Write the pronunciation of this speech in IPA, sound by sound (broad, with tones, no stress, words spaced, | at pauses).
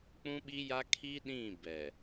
k͡pũ˦ɓi˦ja˦ kʰi˦ɗĩ˦˨ bɛ˨